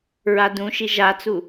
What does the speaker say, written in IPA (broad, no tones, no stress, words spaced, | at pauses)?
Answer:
ɹadũʃi ʒat͡su